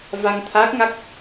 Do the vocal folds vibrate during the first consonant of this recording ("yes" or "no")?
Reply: yes